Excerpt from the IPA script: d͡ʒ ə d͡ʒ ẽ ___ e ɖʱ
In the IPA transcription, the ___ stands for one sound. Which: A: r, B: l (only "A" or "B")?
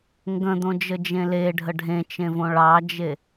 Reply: B